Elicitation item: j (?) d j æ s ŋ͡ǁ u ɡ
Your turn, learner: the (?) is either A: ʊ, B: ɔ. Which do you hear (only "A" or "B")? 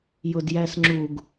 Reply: A